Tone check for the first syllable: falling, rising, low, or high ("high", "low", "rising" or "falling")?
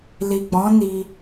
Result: low